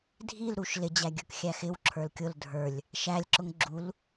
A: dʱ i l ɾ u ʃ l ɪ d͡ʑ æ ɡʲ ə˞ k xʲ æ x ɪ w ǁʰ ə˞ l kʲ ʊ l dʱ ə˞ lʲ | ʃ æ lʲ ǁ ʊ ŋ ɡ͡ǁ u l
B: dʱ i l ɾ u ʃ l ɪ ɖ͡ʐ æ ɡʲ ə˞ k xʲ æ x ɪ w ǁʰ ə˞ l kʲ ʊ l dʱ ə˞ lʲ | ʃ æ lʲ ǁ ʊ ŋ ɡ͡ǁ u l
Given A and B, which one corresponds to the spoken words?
A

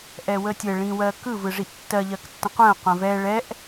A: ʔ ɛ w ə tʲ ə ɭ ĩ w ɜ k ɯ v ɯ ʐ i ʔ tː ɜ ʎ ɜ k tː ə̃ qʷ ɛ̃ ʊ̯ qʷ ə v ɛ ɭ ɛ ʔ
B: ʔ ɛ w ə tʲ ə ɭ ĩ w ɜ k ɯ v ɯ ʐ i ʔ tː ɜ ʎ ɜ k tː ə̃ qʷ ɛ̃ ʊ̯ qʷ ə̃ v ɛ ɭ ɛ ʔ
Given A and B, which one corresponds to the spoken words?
B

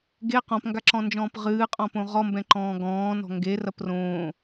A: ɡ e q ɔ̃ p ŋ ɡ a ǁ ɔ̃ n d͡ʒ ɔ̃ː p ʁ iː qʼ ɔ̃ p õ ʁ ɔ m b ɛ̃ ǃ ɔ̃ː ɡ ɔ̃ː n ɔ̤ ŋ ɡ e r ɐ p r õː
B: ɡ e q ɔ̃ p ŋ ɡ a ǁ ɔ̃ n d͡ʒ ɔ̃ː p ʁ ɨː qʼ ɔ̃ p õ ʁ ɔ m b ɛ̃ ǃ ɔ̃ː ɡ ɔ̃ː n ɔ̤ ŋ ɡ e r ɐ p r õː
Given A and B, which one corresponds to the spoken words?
B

